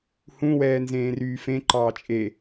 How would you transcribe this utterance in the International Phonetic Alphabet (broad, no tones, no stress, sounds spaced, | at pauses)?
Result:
h ũ w ɛː n z ẽː r yː f ẽ ǃ ɑː t͡ʃʼ e